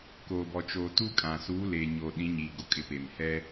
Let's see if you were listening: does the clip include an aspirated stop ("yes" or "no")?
no